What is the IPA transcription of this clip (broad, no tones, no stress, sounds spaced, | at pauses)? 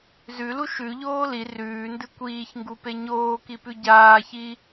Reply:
z ʉ l u ʃ ʉ ʎ oː l i r ʉː n d ɨ kʷ iː ç ŋ ɡ u p e ɲ oː k i p ʉ ɟ aː ç i